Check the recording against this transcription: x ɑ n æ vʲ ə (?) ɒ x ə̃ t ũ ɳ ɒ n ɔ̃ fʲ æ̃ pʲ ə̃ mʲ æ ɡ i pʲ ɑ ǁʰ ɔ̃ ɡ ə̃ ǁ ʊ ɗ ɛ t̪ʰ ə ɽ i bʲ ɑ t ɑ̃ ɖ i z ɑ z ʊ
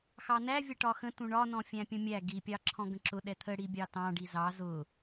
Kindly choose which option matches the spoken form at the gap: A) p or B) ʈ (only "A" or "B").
B